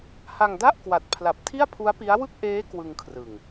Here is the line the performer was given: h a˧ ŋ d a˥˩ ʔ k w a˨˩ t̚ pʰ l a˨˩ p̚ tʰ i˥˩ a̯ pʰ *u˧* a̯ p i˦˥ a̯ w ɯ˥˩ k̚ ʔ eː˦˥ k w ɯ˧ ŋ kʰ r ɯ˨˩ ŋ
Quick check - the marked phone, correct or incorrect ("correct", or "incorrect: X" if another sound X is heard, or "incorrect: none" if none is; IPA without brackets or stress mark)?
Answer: incorrect: u˦˥